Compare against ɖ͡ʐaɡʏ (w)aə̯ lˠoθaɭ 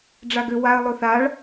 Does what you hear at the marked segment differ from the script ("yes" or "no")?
no